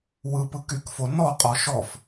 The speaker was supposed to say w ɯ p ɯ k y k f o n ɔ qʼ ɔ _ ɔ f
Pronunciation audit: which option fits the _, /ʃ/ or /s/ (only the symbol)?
ʃ